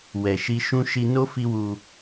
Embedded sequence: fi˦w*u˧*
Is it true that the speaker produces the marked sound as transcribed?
yes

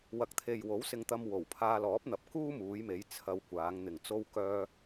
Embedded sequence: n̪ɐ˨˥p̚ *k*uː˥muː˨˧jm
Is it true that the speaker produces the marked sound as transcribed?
yes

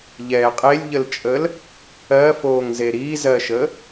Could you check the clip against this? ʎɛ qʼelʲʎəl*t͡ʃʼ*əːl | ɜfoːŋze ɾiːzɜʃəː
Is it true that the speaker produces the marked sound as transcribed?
yes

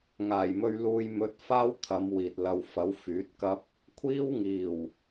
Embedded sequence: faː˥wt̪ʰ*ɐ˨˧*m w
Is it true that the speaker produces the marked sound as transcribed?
yes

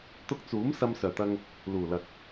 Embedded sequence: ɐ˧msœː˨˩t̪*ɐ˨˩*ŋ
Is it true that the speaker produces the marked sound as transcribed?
no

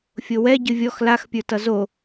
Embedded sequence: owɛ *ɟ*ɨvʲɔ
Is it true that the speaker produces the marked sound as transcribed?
yes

